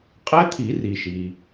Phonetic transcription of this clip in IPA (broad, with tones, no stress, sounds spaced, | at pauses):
qʼ ɛ˦˥ t̪ʰ i˨˩˦ r i˩ ʃ i˩